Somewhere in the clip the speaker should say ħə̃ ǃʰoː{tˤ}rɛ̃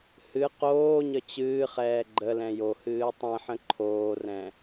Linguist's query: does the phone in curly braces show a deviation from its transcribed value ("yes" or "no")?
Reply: yes